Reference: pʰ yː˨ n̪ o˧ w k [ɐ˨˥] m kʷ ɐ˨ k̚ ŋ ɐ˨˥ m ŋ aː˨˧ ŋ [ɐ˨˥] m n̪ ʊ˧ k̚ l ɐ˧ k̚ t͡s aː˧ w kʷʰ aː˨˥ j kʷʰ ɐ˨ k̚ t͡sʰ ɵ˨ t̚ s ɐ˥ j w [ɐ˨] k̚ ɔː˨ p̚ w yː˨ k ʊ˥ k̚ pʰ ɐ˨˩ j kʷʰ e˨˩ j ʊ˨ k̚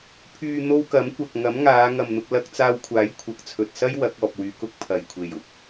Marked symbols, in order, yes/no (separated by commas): yes, no, no